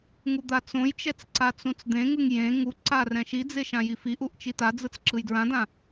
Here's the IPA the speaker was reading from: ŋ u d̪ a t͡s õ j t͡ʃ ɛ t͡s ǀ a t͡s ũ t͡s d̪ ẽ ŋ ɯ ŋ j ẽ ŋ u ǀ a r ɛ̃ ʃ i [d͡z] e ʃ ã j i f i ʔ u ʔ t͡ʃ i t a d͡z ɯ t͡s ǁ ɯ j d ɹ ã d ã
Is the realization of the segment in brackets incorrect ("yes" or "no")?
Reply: no